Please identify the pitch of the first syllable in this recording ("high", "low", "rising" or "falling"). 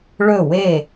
falling